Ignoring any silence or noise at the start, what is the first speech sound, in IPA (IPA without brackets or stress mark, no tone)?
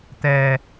t̪